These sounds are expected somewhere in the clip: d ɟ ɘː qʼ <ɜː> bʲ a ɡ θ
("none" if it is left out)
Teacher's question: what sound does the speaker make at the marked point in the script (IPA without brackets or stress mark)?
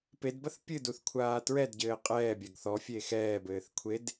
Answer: ɛː